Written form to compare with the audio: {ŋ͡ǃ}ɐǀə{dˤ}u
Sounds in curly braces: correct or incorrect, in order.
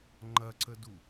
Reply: correct, incorrect

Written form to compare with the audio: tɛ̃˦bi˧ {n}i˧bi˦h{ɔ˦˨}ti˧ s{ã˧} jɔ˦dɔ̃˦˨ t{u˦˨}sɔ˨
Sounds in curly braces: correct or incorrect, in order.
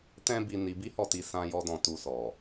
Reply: correct, correct, correct, incorrect

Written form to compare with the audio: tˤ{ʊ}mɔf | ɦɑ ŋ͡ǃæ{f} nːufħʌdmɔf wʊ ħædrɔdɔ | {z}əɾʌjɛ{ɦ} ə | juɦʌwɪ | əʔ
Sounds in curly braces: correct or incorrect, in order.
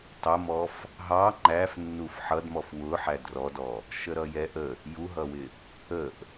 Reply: correct, correct, incorrect, incorrect

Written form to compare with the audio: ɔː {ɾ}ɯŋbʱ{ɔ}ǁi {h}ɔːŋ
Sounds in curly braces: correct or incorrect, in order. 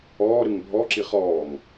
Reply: correct, correct, incorrect

